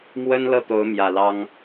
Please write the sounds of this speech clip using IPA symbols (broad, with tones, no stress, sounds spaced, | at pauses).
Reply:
m w ə˥ n l ɤ˥˩ t̪ o˧˥ ʊ̯ m j ä˨˩ l ɑ˥ ŋ